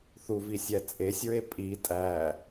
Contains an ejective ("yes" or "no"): yes